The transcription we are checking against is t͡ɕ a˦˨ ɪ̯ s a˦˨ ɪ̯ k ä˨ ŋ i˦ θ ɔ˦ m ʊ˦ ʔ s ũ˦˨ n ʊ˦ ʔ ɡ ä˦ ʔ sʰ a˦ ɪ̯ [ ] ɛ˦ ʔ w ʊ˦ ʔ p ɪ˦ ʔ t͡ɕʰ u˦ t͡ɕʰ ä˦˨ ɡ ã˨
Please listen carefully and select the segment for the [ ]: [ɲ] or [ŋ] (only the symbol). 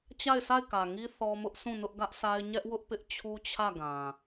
ɲ